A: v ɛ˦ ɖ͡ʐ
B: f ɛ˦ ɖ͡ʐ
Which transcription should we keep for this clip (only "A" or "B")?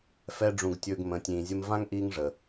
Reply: B